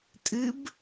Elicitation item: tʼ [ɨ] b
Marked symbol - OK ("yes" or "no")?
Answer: yes